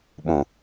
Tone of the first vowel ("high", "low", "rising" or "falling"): low